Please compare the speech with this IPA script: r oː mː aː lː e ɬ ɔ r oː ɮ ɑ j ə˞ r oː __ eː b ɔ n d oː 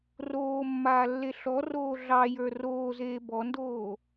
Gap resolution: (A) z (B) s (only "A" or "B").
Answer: A